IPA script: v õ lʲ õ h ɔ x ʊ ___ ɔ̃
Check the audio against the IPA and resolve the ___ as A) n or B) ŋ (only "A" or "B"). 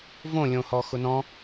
A